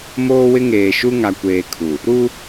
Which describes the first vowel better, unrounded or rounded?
rounded